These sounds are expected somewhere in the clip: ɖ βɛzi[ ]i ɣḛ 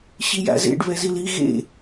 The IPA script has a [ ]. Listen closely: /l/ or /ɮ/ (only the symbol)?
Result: l